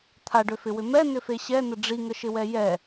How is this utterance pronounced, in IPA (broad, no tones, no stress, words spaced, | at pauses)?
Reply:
t̪ʰaɖøfɪwʏ mɛnʏfe ɕɛnə ɖ͡ʐiŋəʃɪwɛ jɛ